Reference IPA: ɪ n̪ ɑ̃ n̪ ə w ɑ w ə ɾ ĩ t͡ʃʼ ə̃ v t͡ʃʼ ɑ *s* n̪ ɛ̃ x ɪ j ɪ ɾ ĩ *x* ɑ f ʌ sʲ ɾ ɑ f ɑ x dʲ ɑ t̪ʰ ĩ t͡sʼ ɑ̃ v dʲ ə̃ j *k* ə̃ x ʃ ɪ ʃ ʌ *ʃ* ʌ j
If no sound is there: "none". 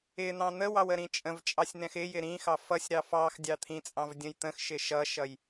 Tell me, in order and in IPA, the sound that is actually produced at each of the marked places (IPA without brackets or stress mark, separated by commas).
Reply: sʲ, x, t̪, ʃ